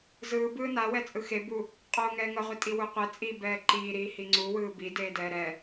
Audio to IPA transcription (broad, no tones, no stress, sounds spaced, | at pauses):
z ɯː b ɯː n a w ɛ t͡sʼ ɯ x e b u | qʼ oː ŋ ɛː ŋ ʌ ʁʷ i tʼ i w u qʷ e t͡sʼ i b ɛː ǃ iː ɾ iː h i ŋ͡ǀ u w ɯː b i d eː d ɛː ɾ ɛ